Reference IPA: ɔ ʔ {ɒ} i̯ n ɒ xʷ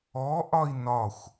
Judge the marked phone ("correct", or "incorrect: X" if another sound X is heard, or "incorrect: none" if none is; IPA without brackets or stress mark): correct